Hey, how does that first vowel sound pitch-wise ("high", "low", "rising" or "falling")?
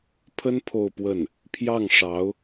high